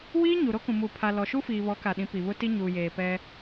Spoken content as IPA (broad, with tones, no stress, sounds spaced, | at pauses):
w iː˦ ɲ u˨ ɾ o˦ k ũ˨ m uː˨ pʰ a˨ l ɔ˨ ʃ u˦ f iː˨ β ɔ˨˦ k a˨ ɗ ĩ˨˦ p i˨ β ʊ˦ t i˦ ɲ uː˨ j eː˨ p ɛ˦